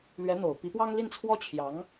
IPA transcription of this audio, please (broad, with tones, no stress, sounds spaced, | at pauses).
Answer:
l ɥ ɛ˧˥ n̪ o˨˩ ʊ̯ p i˧˥ p w ɑ˥ ŋ l i˥˩ n t͡sʰ w ɔ˥ t͡ɕʰ j ɑ˧˥ ŋ